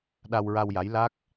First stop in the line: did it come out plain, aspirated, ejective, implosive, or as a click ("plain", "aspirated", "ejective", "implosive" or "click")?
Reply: implosive